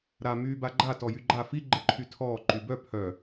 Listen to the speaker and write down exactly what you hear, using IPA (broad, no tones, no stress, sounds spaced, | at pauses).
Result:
ɾ a m yː b a ɡ͡ǃ a t ɔ j y ɡ͡ǃ a f i ɡ͡ǃ ɘ ǃʰ y tʰ ɔː ǃ y b œ pʰ œ